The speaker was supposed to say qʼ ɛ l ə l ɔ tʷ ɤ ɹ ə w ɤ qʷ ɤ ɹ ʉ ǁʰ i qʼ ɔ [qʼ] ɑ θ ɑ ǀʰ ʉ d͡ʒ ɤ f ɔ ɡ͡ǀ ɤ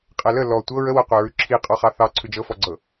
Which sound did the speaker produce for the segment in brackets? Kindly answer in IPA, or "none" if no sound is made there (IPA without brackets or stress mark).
χ